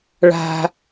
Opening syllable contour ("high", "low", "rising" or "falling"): high